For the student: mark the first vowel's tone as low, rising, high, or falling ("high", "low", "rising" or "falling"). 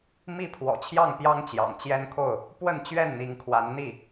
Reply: falling